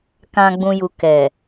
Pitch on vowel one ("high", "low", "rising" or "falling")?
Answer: low